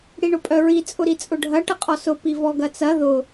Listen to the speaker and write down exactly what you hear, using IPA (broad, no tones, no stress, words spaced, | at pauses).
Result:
ɽiɳʊpʼœɹi t͡sʼʊɾit͡sʼʊɖʱɐ ʈəqʼɔsʊ pivɔɡɐt͡sɐ ðʊ